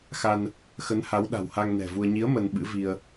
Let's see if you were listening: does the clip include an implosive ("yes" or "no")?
yes